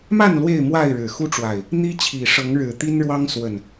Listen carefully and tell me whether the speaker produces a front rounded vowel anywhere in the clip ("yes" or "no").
no